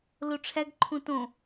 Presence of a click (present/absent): present